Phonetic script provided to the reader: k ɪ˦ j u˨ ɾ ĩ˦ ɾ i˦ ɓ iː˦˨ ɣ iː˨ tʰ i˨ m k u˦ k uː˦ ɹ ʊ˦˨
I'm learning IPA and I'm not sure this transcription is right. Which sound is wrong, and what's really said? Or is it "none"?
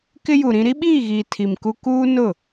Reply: ɹ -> n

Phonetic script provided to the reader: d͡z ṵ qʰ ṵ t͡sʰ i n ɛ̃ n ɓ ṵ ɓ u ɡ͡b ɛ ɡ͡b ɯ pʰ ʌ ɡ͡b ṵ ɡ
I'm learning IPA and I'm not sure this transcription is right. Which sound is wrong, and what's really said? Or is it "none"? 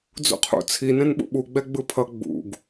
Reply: none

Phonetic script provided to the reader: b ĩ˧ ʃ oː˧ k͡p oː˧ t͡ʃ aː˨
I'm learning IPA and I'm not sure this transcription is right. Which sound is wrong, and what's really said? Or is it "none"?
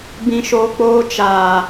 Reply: none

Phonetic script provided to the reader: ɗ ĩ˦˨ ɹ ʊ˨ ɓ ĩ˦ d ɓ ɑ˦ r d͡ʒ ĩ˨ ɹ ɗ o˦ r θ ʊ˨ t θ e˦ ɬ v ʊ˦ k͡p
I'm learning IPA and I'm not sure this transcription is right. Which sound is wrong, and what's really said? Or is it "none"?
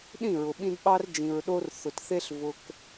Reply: k͡p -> k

